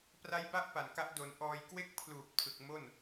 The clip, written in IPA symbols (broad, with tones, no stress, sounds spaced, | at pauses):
p r a˦˥ j b a˥˩ ʔ p a˨˩ n k a˦˥ ʔ d o˧ n ʔ ɔː˧ j k w e˥˩ k̚ pʰ l uː˨˩ p̚ tʰ ɯ˨˩ k̚ m o˥˩ n